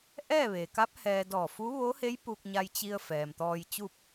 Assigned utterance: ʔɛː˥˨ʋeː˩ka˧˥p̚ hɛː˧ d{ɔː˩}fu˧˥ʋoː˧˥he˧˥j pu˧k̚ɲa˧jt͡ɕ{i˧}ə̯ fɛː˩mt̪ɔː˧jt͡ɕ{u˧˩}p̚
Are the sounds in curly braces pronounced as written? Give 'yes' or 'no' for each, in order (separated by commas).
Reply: no, yes, no